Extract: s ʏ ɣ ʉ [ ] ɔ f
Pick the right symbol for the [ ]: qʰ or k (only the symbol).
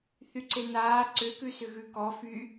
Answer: k